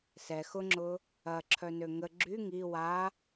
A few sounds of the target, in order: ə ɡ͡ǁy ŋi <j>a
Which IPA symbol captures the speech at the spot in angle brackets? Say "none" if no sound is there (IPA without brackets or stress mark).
w